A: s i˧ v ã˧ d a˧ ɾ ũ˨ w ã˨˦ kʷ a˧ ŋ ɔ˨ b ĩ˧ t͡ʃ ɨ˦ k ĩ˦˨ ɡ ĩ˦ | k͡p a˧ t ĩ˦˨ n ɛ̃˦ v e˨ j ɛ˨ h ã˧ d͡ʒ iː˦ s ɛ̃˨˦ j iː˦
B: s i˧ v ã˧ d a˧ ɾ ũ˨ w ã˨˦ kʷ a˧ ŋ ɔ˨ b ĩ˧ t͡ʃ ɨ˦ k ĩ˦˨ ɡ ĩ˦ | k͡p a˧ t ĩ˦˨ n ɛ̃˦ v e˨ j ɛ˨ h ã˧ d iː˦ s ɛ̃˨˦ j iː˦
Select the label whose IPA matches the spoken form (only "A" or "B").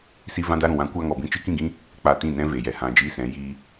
A